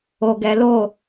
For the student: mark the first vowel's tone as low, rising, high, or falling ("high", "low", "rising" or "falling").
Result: low